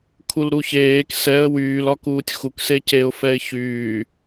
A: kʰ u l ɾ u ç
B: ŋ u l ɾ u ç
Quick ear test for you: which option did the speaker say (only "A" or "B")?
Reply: A